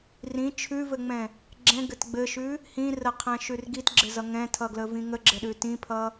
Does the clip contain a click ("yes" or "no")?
yes